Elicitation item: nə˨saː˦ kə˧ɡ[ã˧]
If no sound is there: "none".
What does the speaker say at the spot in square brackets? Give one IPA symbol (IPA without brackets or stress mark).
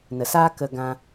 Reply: ã˧